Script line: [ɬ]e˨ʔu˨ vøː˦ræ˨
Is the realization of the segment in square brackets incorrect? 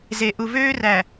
yes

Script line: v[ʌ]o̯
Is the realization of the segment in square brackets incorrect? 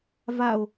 yes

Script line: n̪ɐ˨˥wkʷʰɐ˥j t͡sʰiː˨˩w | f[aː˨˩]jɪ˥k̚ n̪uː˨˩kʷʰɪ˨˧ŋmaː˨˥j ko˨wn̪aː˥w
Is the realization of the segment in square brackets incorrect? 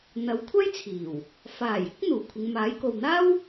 no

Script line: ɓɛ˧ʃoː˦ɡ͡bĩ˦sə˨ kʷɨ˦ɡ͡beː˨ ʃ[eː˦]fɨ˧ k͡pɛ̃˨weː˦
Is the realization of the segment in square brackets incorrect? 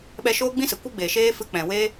no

